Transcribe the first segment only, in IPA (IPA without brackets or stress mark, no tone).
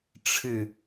ʈ͡ʂʰ